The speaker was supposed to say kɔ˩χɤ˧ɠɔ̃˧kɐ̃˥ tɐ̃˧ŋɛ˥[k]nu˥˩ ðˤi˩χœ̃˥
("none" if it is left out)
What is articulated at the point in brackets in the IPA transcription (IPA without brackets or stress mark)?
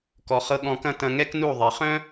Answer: k